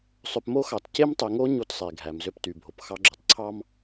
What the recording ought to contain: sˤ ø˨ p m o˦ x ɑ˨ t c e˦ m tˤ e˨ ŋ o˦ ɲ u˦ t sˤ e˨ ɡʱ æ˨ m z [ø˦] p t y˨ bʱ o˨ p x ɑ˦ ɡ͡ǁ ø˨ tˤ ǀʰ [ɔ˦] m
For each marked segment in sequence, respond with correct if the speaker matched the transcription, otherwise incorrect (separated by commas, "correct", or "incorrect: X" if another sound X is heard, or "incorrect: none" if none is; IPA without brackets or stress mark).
correct, incorrect: ɑ˦